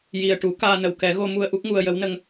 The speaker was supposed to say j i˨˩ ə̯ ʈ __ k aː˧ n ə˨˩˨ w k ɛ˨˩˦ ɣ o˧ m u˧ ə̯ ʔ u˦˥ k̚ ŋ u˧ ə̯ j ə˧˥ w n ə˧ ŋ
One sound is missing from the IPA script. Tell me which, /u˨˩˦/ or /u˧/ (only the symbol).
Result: u˨˩˦